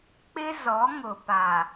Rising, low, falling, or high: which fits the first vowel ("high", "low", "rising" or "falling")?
high